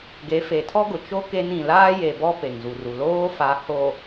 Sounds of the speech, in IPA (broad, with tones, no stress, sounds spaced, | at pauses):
ɡ e˨˦ f e˨ tʰ ɔ˦ ɡ ʊ˨ t͡ʃ o˦ k e˦ n ĩ˨ l aː˦ j e˨ b ɔ˦ p e˨ ŋ z u˨ r u˨ l oː˦ f a˨˦ h o˨